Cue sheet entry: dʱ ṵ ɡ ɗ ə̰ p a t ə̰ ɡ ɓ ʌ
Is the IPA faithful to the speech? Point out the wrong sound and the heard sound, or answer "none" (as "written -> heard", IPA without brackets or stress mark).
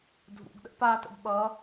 none